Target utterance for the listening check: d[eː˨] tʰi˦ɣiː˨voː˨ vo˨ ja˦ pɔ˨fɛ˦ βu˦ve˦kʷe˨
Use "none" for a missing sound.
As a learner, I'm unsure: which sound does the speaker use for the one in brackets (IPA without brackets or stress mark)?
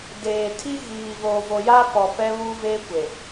eː˨